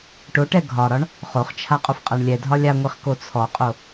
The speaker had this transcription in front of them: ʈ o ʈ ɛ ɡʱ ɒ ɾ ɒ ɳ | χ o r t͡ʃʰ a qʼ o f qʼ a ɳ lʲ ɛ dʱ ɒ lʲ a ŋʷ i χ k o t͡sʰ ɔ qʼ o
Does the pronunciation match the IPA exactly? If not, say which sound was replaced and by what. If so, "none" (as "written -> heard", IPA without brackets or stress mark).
r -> χ